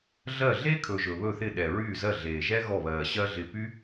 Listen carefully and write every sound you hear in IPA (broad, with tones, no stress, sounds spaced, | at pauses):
ɮ ɜ˦˨ ɮ e˥ kʰ ɵ˨ ʒ ɵ˨ β ɵ˦˨ θ ɪ˦˨ ɗ ɛ˨ ɹ yː˦˨ z ɜ˦˨ ɮ eː˨ ʒ ɛ˥ ɣ ɔ˦˨ β ɜː˨ ɕ ɜ˥ ɮ ɪ˦˨ p y˥